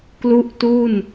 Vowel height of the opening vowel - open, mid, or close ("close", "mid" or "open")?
close